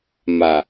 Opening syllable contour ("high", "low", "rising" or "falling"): low